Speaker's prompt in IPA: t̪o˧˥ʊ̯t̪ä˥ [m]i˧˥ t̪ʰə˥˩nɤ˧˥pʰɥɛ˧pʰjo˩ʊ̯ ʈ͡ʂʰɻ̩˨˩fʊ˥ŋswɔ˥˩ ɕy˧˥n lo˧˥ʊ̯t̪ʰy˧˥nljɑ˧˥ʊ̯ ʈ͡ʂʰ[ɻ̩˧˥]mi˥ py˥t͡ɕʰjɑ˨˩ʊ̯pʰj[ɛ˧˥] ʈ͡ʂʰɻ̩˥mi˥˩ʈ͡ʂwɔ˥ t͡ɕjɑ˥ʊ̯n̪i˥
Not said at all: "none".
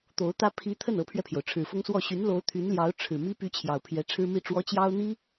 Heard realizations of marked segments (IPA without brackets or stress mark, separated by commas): pʰ, ɻ̩˨˩, ɛ˧˥